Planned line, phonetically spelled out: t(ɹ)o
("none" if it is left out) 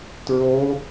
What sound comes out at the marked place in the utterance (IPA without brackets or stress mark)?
ɹ